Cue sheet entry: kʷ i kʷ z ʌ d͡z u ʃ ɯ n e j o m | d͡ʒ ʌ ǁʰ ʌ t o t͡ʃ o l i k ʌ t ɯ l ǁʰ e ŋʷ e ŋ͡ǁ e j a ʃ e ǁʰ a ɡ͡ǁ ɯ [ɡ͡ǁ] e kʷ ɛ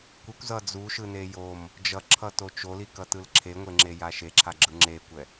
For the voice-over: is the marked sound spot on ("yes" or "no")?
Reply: no